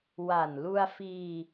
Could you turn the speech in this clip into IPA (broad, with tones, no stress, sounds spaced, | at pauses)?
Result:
w a˨˩ n l u˧ a̯ f iː˧